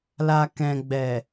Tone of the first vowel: low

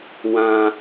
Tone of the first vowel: low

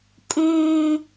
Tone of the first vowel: high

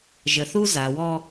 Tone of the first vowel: low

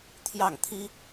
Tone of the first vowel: falling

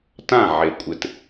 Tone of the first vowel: falling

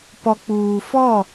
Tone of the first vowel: low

